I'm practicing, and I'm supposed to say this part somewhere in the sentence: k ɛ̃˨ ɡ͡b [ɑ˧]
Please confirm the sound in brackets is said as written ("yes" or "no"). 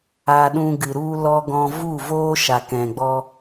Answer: no